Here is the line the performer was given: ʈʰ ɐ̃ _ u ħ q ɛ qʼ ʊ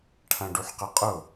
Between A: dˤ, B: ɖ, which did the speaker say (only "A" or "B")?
B